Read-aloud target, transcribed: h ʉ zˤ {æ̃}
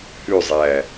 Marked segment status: incorrect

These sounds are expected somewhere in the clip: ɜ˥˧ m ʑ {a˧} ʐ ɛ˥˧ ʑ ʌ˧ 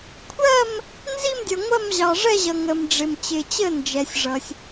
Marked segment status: incorrect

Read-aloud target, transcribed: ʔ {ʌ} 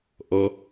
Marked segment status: correct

